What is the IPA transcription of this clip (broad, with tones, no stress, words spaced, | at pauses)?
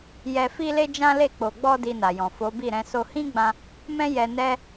jɛ˧fi˦le˦ d͡ʒã˦le˦˨ k͡po˨ɡ͡bɔ˧ di˧na˨jɔ̃˨ fo˨˦bi˦˨ɾɛ̃˨˦ so˧ hĩ˦ɡ͡bã˧ | mɛ̃˦jɛ˧ nɛ˦